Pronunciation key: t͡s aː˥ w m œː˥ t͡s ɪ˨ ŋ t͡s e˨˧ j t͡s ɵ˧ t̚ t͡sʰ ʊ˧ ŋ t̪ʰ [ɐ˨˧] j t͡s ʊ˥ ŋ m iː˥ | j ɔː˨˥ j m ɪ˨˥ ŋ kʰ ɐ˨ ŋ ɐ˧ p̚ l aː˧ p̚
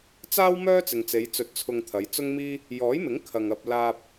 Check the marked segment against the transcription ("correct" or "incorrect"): correct